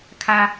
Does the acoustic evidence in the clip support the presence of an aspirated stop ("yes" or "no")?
yes